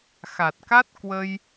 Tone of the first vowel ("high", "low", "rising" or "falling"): low